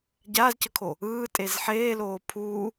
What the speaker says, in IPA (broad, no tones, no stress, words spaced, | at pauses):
ɟaːzcʌkʰo | ɯːtʼez ħeːloː pʰuː